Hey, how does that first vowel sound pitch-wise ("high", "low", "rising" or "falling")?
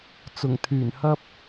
low